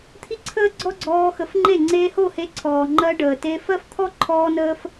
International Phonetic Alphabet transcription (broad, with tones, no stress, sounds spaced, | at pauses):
t̪ʰ i˦ ǀʰ əː˦ ɡ͡ǀ ɔ˦ ɡ͡ǀ ɔː˧ x ə˨˦ f ŋ͡ǃ e˦˨ ŋ͡ǀ eː˧ h o˦˨ h e˧ ǀʰ ɔː˨ ŋ͡ǃ ɜ˧ ɖ əː˨ t e˧ f ɜ˦ f t̪ʰ ɔ˦ ǃʰ ɔː˧ n əː˧ f